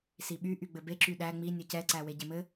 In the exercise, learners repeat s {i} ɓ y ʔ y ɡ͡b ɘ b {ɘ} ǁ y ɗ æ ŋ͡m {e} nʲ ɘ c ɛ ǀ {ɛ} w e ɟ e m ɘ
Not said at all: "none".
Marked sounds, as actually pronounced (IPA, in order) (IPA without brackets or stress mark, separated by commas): i, e, i, æ